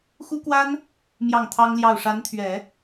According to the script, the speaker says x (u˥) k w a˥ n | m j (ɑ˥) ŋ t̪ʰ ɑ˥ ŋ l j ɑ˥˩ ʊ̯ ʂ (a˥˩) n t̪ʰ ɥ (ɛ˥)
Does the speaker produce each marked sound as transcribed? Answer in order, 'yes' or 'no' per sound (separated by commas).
yes, no, no, no